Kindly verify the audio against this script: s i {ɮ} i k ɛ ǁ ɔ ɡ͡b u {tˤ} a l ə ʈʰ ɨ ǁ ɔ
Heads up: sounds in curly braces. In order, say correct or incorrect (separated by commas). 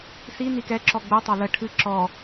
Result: incorrect, correct